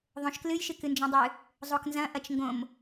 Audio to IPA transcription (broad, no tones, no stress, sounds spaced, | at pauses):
ðˤ õ ʃ k l ɨ j ʃ ɨ k ɨ n d͡ʒ õ dˤ ɨ | zˤ o k n z ɐ̃ ʔ ɐ t͡ʃ ŋ ɡ õ m